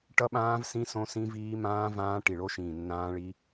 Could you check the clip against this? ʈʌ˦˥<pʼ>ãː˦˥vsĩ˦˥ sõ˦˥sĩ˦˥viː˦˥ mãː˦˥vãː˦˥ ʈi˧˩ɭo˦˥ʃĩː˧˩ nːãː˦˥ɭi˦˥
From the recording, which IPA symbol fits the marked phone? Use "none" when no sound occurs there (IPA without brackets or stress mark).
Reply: ɓ